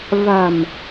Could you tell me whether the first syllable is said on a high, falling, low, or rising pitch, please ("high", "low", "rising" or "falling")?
low